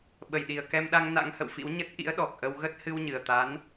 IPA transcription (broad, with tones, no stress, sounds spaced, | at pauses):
ɓ ə˧˩ j ɗ i˨˩ ə̯ k ɛ˧ m ɗ a˧ ŋ n a̰˧˥ ŋ h ə̰˧˨ w f ḭ˧˥ w ɲ ə˦˥ t̚ ʔ ḭ˧˥ ə̯ ɗ ɔ˨˩ k̚ ʔ ə˧ w ɣ ə˦˥ t̚ h ɨ˧ w ɲ ɨ˨˩ ə̯ t̪ a˨˦ n